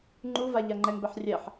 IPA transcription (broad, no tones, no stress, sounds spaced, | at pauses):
ŋ͡ǃ u v a ʎ a ŋ͡ǃ ɛ ŋ b ɛ ħ rʲ ɛ ħ